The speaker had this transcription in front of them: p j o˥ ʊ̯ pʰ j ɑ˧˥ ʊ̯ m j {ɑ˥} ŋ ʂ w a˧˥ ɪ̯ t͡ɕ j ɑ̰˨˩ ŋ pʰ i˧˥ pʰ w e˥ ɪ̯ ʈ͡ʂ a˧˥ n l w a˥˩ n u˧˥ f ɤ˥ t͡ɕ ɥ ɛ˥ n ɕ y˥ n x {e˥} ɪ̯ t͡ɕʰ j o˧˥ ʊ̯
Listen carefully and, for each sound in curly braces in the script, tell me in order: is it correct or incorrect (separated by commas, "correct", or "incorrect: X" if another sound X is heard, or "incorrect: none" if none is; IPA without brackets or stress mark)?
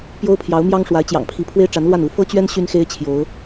correct, correct